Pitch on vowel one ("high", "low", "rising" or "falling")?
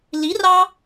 rising